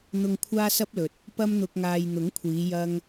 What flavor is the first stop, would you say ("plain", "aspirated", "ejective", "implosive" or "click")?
aspirated